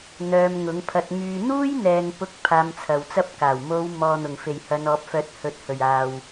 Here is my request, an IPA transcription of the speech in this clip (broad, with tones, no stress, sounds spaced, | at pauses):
n̪ œː˧ m ŋ ʊ˨˥ ŋ pʰ ɐ˧ t̚ m yː˨ n̪ uː˥ j n̪ ɛː˨ ŋ p ʊ˥ k̚ pʰ aː˧ m t͡sʰ ɐ˨ w t͡s ɐ˥ p̚ k aː˨˩ w m o˨˧ w m ɔː˨ n̪ ʊ˨˩ ŋ f e˨˩ j h ɐ˨˧ n ɔː˨˥ p̚ f œː˨˥ t̚ h ɵ˨˥ t̚ h ɵ˨˩ ɥ aː˨ w